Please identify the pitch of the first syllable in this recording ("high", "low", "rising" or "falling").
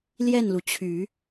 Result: falling